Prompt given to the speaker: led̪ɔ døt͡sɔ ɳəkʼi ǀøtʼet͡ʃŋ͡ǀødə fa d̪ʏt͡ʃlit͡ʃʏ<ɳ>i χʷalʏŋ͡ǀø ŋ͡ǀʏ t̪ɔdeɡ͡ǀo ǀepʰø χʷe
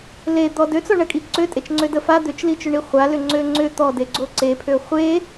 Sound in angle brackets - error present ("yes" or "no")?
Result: no